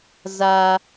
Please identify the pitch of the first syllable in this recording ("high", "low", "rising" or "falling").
high